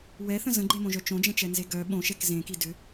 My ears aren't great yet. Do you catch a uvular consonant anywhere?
no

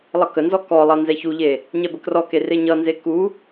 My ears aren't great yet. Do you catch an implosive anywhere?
no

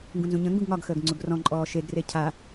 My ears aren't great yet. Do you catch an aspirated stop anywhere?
yes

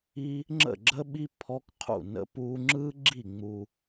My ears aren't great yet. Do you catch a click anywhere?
yes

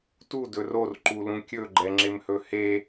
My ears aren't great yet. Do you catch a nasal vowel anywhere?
yes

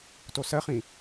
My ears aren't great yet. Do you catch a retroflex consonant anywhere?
no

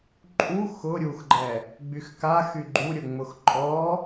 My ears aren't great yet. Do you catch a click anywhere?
yes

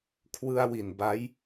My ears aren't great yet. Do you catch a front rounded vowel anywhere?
no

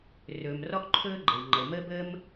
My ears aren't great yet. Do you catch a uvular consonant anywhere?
no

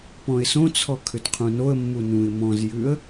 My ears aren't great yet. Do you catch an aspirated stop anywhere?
yes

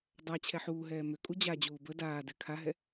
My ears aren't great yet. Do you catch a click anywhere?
no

